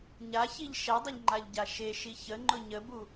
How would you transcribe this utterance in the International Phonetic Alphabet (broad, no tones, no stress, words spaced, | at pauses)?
ɲaçiʎ ʃɛdˤəʎ ŋ͡ǃaʎɟaʃe ʃiçə ŋ͡ǃʊɲəbu